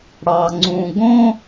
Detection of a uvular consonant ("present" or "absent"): absent